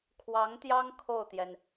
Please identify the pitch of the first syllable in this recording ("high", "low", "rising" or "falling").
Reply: rising